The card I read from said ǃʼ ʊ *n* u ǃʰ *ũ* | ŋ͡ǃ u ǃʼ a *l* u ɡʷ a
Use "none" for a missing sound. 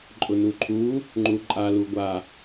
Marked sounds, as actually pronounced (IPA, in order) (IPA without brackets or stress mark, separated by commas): n, u, l